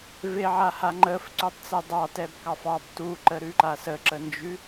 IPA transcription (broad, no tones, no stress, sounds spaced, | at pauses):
v e ʕ a h a ŋ͡ǃ ə f ǀ ʉ tˤ t͡s ɛ dˤ ɑ t ɛ b k ɑ f ɑ b t u ǃ ə ɾ ʉ ǃ a s ə ǁ ə n d͡ʒ ʉ